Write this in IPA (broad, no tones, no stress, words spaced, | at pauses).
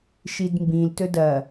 ʃidmbĩl tɵdɐ